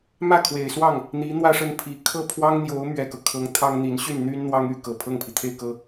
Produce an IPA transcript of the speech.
m ä˥˩ kʰ w e˨˩ ɪ̯ s w ɑ˥˩ ŋ | n̪ i˧˥ n̪ w ä˥˧ ʂ ə˥˩ n pʰ i˧˥ kʰ ɤ˥˩ pʰ w ɑ˥ ŋ n̪ j o˧˥ ʊ̯ m ɥ ɛ˨˩ k ɤ˦ kʰ ɤ˧˥ ŋ t̪ʰ ɑ˥ ŋ n̪ i˧˥ n ɕ y˥˩ n n̪ y˥ n n̪ w ɑ˥ ŋ y˥ k ɤ˨˩ pʰ ɤ˥˩ ŋ pʰ i˩ t̪ʰ e˥˩ ɪ̯ k ɤ˥

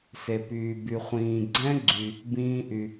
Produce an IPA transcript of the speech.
s e˩ p yː˩ b y˩ χʷ ĩː˩ ɡ͡ǀ ɛ̃˦˥ ɡ͡ǀ y˩ | b ĩː˦˥ ʔ y˩

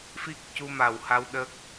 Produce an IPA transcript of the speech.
f i˦˥ k̚ c u˧ m a˨˩ w h a˧ w ɗ ə˦˥ k̚

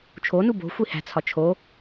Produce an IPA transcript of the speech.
t͡ʃʰ o n u b o̤ xʷ i h æ̤ t͡sʰ ɒ t͡ʃʰ o

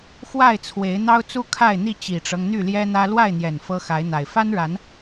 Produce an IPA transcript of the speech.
x w a˥˨ ɪ̯ t͡sʰ w e˨˦ ɪ̯ n̪ ɑ˦ ʊ̯ t͡s u˦ kʰ a˥˨ ɪ̯ n̪ i˥˨ t͡ɕ i˨˩ ʈ͡ʂ ɤ˦ ŋ n̪ y˥˨ l j ɛ˦ n̪ ä˦ l w a˥˨ ɪ̯ n̪ j ɛ˨˩ n f ɤ˦ x a˨˦ ɪ̯ n̪ a˨˩ ɪ̯ f a˦ n ɻ a˨˦ n

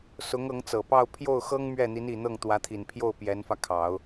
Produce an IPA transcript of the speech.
s ʊ˧˥ ŋ ɤ˧˥ ŋ t͡s ɤ˨˩ p ɑ˥˧ ʊ̯ pʰ j o˥˩ ʊ̯ x ɤ˥ ŋ m ɥ ɛ˥˩ n̪ i˧˥ n i˨˩ n̪ ɤ˥˩ ŋ t̪ w ä˧˥ t̪ʰ i˨˩ n pʰ j o˥˩ ʊ̯ p j ɛ˧˥ n f ä˧ kʰ ɑ˨˩˦ ʊ̯

